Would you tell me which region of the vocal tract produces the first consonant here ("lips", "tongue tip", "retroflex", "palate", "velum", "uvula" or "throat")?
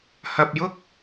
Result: throat